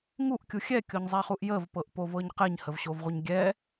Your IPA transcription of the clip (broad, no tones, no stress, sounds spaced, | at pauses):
ŋ u ʔ kʲ u xʲ ɛ kʲ o ɲ zˤ æ χ u ʔ j ə v p ɤ ʔ p o v ɤ ɲ q ɛ ɲ h ə v ɕ o v ʁʷ ə ɲ ɡʲ ɛ